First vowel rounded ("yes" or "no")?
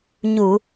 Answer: yes